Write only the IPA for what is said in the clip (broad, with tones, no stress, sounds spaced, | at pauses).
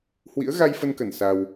h w ḭ˧˥ ə̯ ɣ a˧ j f ə˧ n k ə˧˩ n s a˧ w